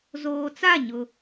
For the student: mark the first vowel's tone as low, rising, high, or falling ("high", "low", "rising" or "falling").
low